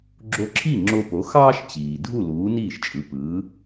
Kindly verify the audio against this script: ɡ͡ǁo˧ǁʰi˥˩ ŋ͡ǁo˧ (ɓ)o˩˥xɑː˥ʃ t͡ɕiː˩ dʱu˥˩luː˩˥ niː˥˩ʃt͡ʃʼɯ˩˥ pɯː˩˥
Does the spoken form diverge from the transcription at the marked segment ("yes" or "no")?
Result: yes